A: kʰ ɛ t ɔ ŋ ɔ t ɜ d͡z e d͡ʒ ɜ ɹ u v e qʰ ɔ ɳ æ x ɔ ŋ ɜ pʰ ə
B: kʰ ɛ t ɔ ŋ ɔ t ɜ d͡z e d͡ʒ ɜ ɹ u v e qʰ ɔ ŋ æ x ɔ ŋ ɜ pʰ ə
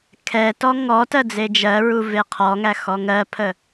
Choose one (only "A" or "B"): B